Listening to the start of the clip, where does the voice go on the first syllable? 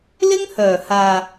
high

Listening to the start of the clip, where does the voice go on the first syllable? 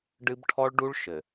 high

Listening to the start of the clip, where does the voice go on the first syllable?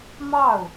falling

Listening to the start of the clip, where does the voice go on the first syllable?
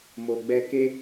low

